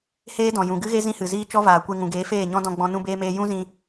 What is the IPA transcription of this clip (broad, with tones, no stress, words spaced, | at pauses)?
heː˦dɔ̃˨ jũ˨ɡɨ˦ɣe˦ zĩ˦hɨ˨ziː˦ t͡ʃɔ˦vaː˨kʷe˧ ŋũ˨ɡeː˨˦feː˦˨ɲɔ̃˦ dɔ̃˧ɡ͡bɔ̃˧ nũ˦beː˦meː˦ jũ˦zĩ˧